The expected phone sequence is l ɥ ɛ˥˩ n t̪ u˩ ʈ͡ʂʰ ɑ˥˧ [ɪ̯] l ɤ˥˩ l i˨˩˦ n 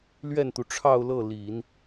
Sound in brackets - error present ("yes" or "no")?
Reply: yes